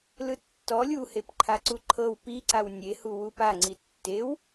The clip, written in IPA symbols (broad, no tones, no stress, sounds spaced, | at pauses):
l ɯ tː ɔ lʲ u h e p ǃʰ a ǀ u ǃʰ ɤ w p i ǀ a w nʲ e h u w u p a ŋ͡ǀ i tː e w